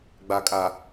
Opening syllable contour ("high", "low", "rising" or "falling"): low